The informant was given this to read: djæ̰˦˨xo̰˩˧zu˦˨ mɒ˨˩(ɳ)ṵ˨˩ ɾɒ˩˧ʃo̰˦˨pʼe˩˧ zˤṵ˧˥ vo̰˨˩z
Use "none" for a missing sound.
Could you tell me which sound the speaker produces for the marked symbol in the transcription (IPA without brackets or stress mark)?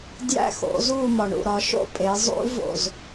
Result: ɳ